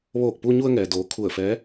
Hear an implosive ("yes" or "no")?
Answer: no